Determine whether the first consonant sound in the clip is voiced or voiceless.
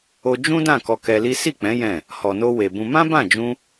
voiced